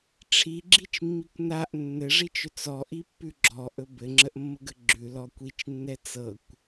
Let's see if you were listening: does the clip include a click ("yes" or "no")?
yes